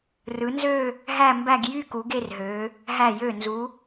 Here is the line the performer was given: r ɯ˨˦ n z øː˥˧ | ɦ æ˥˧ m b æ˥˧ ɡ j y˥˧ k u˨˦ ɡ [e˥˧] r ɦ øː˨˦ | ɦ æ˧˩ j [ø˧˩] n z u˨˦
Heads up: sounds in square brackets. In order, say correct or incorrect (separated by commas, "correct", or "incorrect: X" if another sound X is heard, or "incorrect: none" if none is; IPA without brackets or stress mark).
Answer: correct, correct